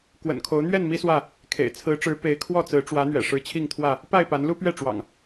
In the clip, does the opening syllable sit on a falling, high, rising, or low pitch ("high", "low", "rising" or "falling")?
low